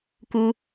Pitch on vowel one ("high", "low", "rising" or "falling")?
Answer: high